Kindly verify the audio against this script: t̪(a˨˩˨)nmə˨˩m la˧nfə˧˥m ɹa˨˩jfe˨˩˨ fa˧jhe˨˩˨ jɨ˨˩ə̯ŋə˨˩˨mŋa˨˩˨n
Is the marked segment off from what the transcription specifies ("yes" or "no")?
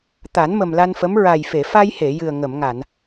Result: yes